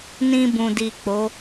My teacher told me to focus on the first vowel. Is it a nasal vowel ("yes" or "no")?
yes